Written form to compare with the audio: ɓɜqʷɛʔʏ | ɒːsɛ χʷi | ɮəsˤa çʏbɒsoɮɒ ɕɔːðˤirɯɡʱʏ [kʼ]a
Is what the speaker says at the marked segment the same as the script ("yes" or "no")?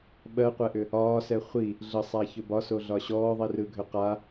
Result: no